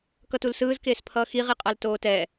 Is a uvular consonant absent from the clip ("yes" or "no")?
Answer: no